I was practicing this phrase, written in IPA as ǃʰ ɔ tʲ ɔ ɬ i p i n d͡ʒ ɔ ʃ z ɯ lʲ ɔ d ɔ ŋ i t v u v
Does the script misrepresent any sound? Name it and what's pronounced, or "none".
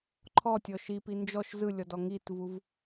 ɬ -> ʃ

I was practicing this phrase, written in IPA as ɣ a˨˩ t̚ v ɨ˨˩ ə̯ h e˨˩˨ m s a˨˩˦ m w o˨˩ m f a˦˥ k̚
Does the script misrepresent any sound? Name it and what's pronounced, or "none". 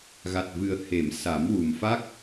o˨˩ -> u˨˩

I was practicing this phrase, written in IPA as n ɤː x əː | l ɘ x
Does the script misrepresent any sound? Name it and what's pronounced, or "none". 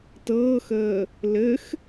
n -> t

